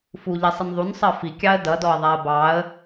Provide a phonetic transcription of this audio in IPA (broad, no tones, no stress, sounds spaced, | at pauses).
f u ʎ i sˤ ɪ n ðˤ u n sˤ ɜ f i kʲ ɑ ə̯ d ʌ d ɔ ə̯ ðˤ æ ə̯ b ɑ ə̯